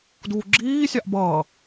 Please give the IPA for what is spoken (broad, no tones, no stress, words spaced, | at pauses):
duːɡ͡ǁiːsʲɑʔ bʌː